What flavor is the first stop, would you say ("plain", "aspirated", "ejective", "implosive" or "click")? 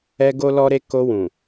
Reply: plain